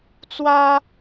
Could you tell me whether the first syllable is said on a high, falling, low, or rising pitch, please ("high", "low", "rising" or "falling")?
high